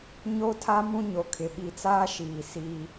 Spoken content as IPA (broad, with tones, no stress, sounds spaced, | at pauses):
ɲ o˦ tʰ a˦ m ũ˦ ɲ o˨ kʰ ɪ˨ ɓ i˨ t͡s aː˦ ʃ iː˨ s iː˦